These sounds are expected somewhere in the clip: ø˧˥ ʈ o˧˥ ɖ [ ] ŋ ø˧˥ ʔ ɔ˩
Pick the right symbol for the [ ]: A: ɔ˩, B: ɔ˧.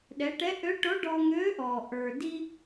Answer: B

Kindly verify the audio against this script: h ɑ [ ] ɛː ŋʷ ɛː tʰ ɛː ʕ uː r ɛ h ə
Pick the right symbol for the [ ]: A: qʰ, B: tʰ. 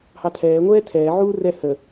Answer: B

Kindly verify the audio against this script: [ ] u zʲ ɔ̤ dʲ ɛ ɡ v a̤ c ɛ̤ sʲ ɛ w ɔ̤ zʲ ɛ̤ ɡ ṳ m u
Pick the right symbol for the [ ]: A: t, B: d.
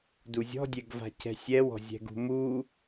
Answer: B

